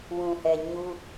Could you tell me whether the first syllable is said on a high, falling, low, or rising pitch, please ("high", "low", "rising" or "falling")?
low